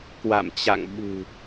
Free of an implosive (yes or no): no